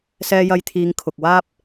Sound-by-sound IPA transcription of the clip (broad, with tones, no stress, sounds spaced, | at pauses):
s ɛː˧ j ɐ˧ j t̪ʰ iː˨˧ ŋ kʰ ʊ˨ k̚ w aː˥ p̚